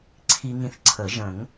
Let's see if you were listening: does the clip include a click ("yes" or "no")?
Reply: yes